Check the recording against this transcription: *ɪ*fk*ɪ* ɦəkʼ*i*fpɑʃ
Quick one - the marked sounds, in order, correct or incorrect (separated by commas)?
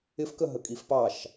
correct, incorrect, correct